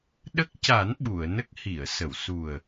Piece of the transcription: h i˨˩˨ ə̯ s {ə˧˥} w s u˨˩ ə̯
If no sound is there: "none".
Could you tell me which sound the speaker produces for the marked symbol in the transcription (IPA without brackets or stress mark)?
ə˨˩˨